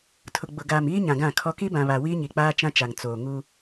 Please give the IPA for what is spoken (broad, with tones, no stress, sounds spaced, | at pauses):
tʰ ʊ˨ ɡ͡b ʊ˨ ɡ aː˨ m iː˦ ɲ ã˨ ɡ ã˦˨ kʰ ɔ˦ k i˦ b ã˨ β a˨ w iː˦ ɲ i˨ k͡p aː˦ t͡ʃ ã˦ t͡ʃ a˨ ŋ t͡s oː˨ ŋ u˦